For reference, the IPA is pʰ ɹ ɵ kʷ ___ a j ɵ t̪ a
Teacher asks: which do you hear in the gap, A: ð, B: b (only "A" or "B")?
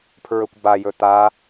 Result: B